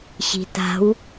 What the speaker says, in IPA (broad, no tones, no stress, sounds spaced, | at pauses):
ɕ i̤ t a̤ w